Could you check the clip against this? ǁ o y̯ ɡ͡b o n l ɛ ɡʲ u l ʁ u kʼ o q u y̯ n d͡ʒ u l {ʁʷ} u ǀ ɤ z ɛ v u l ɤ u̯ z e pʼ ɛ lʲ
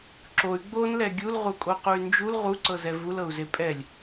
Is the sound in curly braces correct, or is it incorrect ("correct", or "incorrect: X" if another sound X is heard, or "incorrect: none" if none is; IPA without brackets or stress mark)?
incorrect: ʁ